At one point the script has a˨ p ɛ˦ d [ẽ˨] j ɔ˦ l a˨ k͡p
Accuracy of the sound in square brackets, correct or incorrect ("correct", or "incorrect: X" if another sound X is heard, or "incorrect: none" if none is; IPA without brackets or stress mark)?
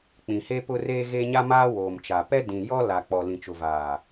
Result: incorrect: ĩ˨